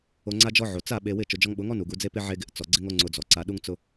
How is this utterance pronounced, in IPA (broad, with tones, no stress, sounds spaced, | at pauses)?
o˧ ŋ͡ǀ a˦ d͡ʒ ɔ˦ ʕ o˨ t͡s a˦˨ ɓ e˧ w ɪ˦˨ t͡ʃ ʊ˨ d͡ʒ ɔ˧ ŋ ɓ ʊ˨˦ ŋ ɔ˦ n u˨ ɡ u˧ d͡z e˦ p ɪ˦ ʕ e˦ ɡ ɪ˧ ʔ t͡s ɔ˨ ɡ͡ǀ ɪ˦ ŋ o˦ ŋ͡ǀ ʊ˧ d͡z ɔ˨ ǀ a˧ ɗ u˦ ŋ t͡s ʊ˦